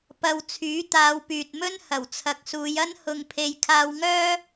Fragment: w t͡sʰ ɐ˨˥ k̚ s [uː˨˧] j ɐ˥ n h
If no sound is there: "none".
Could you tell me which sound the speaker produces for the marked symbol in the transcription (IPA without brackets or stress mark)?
uː˨˧